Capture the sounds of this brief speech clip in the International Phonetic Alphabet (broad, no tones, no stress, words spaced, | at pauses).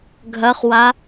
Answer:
ɡʱɐχwa